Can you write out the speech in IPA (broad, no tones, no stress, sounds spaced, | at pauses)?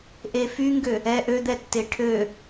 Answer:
ʔ e f y ŋ ɡ ø | ɛ ʔ ø d̪ ɛ tː e ʈʰ ø